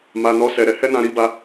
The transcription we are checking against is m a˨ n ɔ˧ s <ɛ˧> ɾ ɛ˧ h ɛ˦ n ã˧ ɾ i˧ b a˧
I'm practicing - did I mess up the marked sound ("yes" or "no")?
yes